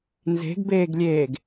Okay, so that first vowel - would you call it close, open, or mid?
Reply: mid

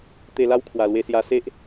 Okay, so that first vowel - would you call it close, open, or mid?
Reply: mid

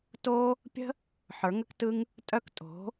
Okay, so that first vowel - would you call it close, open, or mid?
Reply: mid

